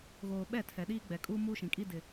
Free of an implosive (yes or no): no